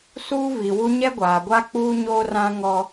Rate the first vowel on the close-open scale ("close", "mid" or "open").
close